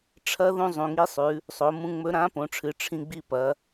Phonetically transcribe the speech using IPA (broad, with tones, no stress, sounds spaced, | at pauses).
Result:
ʈ͡ʂʰ ɐ˧˥ ð ũ˧ zˤ ũ˩ ŋ i˧˥ sˤ ʉ˩˧ | sˤ o˩˧ m ũ˧ ŋ͡m ɵ˧˥ ɾ ã˧˥ p õ˩˧ ʈ͡ʂʰ ɨ˩˧ ʈ͡ʂʰ ĩ˧ ɡ͡b i˧ p ɐ˩˧